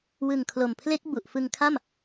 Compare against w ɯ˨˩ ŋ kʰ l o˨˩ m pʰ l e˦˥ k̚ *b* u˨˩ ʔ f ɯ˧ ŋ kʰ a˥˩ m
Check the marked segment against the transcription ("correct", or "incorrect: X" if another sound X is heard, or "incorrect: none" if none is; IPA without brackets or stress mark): correct